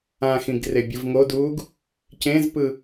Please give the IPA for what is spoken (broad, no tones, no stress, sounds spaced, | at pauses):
ã x ĩ ɡ r e bʲ ɯ v ŋ o d uː ɡ | c ẽ z p ɯ